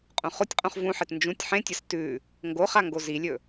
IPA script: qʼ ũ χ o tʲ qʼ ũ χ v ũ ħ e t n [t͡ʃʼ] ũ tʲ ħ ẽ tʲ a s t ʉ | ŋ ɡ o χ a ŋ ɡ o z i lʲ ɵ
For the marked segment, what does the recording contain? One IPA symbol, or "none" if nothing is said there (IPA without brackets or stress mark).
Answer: d͡ʒ